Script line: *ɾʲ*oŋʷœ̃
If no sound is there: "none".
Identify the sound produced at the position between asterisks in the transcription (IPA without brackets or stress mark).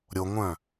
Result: ɾʲ